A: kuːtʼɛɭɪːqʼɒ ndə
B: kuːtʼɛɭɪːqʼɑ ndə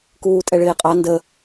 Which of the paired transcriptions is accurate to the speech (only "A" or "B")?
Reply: B